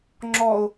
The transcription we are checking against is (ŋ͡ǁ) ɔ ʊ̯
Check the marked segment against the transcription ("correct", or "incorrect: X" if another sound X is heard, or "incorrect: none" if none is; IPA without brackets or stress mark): correct